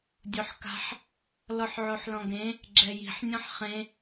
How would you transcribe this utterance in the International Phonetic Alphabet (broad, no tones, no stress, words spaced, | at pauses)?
dʲoħka̤ħ | lɔħʕoħlɔ̃ɡẽ | ɡ͡ǁɛji̤ħ nʲɔ̃ħχẽ